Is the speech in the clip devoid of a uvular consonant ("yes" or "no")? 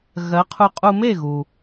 no